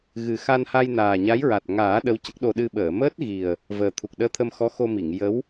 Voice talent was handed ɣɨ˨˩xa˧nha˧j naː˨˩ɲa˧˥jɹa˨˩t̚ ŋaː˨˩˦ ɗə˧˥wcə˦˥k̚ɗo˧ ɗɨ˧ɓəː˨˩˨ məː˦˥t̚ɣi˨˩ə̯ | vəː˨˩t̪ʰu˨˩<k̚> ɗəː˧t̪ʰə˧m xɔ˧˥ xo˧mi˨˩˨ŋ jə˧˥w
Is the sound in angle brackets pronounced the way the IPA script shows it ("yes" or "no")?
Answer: yes